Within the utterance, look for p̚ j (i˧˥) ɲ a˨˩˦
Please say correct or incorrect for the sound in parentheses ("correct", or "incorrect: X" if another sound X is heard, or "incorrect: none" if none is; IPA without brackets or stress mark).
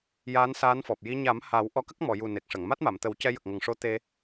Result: correct